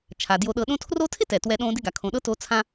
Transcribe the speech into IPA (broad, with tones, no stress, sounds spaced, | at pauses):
t͡ʃʰ a˩ d j o˨ ɗ ɤ˨ ɗ õ˦ tʰ r o˦ tʰ ɪ˥ t ɛ˩ t w ɛ˨ ɗ õ˦ d ɪ˦ ɡ a˩ kʰ õ˨ ɗ ɤ˥ t o˦ t͡sʰ ã˥